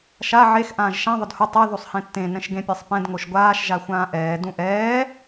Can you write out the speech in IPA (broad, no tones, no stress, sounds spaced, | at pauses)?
ʃ a ʕ e x ʔ ãː ʒ ʃ ã ðˤ ʊ d h ʊ tˤ ɛ ð u sˤ h ẽ tː ẽ n ɛ̃ ʃ ɡ ẽ pʲ e sˤ p ɛ̃ d ŋ o ʃ ɡʷ aː ʃ ʒ a xʷ ãː ʔ ɛː d ũ ʔ ɛː